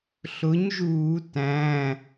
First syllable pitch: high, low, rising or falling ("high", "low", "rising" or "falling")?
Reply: rising